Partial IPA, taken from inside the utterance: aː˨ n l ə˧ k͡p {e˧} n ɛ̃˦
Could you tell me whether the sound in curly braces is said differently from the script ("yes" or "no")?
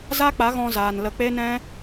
yes